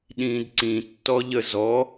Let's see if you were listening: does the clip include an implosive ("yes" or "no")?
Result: yes